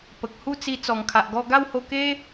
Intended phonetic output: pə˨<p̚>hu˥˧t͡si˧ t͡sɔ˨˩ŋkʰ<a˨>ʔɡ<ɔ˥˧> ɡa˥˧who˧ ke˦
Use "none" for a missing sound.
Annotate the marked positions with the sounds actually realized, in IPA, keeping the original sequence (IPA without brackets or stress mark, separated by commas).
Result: k̚, a˨, ɔ˧